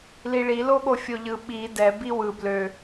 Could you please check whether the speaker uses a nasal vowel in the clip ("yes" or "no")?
no